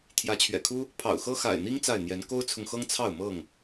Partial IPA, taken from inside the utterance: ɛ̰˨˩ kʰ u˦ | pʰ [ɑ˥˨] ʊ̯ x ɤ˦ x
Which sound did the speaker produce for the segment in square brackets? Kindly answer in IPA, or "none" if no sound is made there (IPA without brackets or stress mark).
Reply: ɑ̰˨˩